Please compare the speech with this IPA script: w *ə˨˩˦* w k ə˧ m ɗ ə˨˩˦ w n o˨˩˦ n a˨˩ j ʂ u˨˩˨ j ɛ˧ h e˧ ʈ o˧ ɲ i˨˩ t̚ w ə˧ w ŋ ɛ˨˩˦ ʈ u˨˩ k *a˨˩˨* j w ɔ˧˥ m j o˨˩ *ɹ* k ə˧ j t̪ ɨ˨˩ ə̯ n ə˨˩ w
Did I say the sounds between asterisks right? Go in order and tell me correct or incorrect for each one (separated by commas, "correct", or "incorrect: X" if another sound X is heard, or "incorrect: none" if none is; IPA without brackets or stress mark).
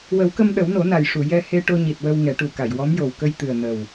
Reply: correct, correct, incorrect: w